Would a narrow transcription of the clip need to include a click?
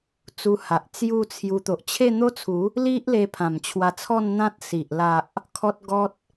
no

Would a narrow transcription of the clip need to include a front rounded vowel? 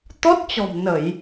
no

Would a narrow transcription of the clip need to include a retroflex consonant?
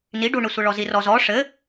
yes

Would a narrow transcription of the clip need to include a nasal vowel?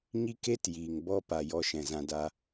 yes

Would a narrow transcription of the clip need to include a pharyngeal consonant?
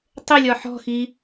yes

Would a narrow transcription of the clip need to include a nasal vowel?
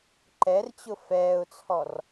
no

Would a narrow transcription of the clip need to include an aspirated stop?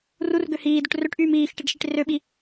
no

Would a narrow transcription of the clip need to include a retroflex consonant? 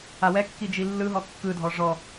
yes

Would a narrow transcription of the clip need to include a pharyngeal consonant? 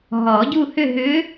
no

